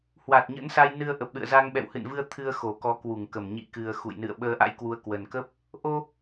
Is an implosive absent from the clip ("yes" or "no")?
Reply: no